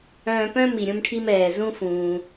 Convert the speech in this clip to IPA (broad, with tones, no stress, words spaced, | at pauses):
œ̃ː˧pœ̃˥ mi˩ɾʲũ˧mʈʰi˧m ɛː˩zũ˧fũː˩